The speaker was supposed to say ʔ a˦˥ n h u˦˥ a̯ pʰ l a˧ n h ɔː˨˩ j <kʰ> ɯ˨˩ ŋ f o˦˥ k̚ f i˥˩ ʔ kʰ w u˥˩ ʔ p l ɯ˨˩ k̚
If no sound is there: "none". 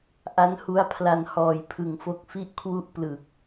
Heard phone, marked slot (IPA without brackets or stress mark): pʰ